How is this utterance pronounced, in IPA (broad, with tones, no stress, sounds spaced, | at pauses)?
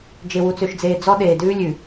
d͡ʒ e˨ w u˨ t͡s ø˨ ʃ d͡z eː˨ d͡z ɔ˦ ɗ eː˨ d ʉː˦ lʲ ʉ˨